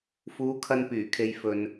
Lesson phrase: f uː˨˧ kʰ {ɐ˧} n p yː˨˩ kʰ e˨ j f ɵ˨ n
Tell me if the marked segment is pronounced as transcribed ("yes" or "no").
yes